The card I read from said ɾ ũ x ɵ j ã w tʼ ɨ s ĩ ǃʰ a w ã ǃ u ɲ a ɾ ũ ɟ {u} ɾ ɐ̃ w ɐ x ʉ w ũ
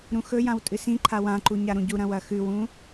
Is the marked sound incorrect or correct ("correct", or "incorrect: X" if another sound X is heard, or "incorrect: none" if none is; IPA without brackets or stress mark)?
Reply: correct